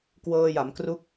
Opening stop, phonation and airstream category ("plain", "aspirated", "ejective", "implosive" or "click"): plain